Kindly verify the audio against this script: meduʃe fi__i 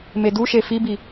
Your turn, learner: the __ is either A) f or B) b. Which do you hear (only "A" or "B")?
B